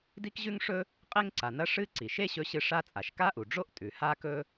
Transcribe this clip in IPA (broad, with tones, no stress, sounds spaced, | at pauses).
d i˥ k ʑ ʉ˥ ŋ ʂ ɵ˥ | qʼ e˥ ŋ ǀ a˩ n ɐ˥ ʂ ɨ˥ ǀ i˩ ʃ e˥ ɕ ɵ˧ ɕ ɨ˧ ʂ a˥ t͡sʼ a˩ ʃ k a˥ ʔ u˩ ɖ͡ʐ o˥ ʔ tʼ ʉ˩ h a˥ k ɵ˥